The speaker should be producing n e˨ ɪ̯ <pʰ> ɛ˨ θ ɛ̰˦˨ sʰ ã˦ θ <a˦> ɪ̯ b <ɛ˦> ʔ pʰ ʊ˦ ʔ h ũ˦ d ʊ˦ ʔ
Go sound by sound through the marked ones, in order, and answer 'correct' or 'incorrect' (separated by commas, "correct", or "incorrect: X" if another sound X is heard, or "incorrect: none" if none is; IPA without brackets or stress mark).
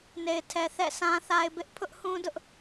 incorrect: tʰ, correct, incorrect: ɪ˦